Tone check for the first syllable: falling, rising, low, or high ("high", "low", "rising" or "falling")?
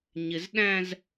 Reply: low